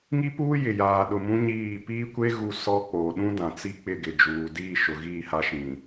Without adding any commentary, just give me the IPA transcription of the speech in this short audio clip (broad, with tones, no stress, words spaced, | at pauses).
ŋi˦puː˦ jɪ˨jaː˨ɗʊ˨ mũ˦ɲiː˦˨ piː˦kʷe˦ ɣu˦sɔ˦ k͡poː˨ɗũ˦dã˨ t͡si˦k͡pɪ˦˨ ɡɪ˨d͡ʒuː˨diː˦˨ ʃʊ˨ɣiː˦˨ha˦ ʃĩ˨